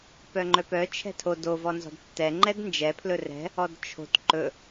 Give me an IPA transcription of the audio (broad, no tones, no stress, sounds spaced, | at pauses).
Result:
p œ ŋ͡ǃ œ p œ t͡ʃʰ ɛ̤ tʰ o d o v ɔ n z ɔ̤ d tː ɛ ŋ͡ǃ ɛ d n d͡ʒ ɛ pʰ l ɵ r ɛ̤ | ɔ d t͡ʃʰ o̤ t ǃ ɵ